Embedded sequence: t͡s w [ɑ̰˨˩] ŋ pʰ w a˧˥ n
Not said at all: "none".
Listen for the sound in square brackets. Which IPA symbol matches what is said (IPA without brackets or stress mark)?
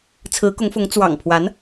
ɑ̰˨˩